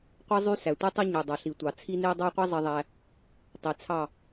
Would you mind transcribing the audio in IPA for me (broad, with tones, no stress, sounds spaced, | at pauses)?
qʷ ɯ˦ zˤ y˦ s æ˨ tʷ i˦ tˤ ɯ˦ ɲ ø˨ dˤ ɑ˨ ɬ i˨ tʷ ɑ˨ t͡sʰ i˦ n e˦ dˤ ɑ˦ qʷ i˦ zˤ i˧ ðˤ æ˧ | tˤ i˨ t͡sʰ ɑ˦˨